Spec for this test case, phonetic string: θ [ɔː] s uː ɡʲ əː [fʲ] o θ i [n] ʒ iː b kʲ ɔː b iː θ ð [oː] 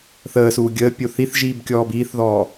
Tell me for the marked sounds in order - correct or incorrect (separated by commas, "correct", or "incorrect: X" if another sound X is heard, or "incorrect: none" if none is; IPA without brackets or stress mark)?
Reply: incorrect: əː, incorrect: pʲ, incorrect: θ, incorrect: ɔː